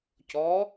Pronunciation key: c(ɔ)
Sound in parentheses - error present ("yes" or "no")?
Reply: no